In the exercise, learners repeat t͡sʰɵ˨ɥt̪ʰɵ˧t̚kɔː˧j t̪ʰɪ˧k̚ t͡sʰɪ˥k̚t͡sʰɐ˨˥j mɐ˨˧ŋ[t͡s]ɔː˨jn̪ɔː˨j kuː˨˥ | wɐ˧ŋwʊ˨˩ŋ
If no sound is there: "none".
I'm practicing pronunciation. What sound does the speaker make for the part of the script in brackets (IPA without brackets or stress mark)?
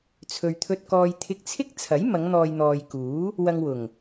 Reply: n̪